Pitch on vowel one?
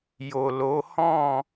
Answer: low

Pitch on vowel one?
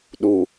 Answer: low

